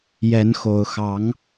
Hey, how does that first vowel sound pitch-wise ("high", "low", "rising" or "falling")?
rising